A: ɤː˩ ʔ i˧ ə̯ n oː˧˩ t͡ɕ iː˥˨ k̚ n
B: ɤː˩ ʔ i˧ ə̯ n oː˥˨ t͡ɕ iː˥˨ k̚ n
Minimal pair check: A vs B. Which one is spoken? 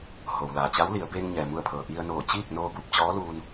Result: A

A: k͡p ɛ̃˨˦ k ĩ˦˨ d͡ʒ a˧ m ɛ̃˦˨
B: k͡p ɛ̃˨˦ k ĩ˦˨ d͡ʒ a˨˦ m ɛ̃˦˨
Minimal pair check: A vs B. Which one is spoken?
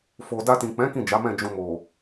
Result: B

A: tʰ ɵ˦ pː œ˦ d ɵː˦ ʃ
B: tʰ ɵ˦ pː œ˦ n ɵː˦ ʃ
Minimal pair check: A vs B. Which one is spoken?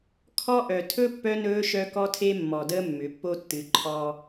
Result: B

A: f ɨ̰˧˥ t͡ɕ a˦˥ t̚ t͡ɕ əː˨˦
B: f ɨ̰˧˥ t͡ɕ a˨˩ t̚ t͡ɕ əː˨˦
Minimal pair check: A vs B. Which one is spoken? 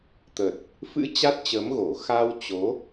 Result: A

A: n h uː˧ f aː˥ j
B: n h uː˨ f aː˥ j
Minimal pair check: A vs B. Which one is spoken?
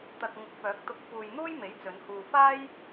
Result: A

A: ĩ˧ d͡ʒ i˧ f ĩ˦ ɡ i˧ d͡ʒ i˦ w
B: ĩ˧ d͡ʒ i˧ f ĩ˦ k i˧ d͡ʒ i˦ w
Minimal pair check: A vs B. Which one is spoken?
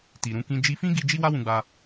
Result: A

